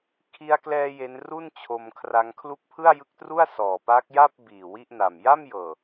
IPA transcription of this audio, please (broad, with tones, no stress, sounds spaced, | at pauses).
kʰ i˧ a̯ k l ɛː˧ j e˦˥ n r u˥˩ n t͡ɕʰ o˧ m kʰ r a˦˥ ŋ kʰ l u˦˥ k̚ pʰ ɯ˥˩ a̯ j ɯ˦˥ k̚ t r u˥˩ a̯ s ɔː˨˩ p aː˦˥ k̚ j a˥˩ p̚ b iː˨˩ w i˥˩ ʔ n a˨˩ m j a˥˩ m j ɤː˨˩